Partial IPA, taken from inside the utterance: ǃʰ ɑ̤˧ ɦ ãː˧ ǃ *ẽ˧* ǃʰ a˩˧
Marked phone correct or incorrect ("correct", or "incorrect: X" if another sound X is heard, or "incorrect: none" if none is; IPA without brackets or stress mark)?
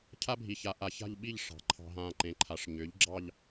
incorrect: ẽ˩˧